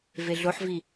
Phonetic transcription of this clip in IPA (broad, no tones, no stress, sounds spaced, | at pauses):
v e ɮ o ħ v i